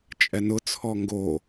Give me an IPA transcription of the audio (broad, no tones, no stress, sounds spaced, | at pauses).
t͡ʃʼ ɛ n ʊ t͡sʰ ɔ ŋ ɡ o